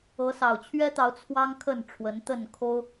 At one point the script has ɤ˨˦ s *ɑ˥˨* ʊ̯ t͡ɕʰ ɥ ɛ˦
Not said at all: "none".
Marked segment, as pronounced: ɑ˨˩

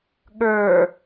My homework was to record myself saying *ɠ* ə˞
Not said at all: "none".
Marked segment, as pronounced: ɠ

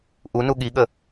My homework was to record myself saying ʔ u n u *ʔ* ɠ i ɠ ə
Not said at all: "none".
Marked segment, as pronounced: none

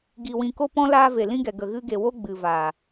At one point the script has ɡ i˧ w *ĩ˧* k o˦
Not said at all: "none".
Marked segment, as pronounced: ĩ˧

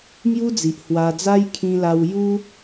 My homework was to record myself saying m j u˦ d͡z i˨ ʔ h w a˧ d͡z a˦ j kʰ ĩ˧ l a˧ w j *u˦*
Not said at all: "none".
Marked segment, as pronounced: u˦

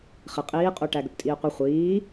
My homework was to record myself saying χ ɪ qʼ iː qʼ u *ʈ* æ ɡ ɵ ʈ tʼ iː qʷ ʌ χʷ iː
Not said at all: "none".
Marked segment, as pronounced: ʈ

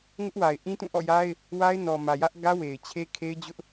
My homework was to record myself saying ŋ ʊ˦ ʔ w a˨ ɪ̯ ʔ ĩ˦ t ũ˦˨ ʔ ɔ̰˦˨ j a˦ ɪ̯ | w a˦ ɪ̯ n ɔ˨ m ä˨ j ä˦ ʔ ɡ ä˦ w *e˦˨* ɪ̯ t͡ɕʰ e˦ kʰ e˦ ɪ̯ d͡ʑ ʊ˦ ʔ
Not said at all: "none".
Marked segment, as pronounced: e˨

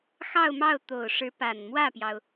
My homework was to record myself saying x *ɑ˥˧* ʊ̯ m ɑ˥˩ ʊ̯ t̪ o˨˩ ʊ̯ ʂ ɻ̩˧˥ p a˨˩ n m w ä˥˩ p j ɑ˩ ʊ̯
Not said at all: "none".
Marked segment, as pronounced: ɑ˥˧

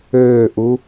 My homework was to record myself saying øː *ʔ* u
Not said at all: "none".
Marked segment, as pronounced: ʔ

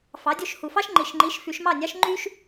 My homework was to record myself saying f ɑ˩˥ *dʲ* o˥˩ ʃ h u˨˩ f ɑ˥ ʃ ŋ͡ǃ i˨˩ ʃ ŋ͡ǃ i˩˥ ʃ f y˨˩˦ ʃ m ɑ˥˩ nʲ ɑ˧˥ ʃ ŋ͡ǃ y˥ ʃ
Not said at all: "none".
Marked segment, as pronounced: dʲ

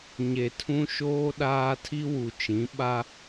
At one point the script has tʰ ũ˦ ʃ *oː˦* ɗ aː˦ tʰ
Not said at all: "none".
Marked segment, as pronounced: oː˦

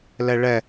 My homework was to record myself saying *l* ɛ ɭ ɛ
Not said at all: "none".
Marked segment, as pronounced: l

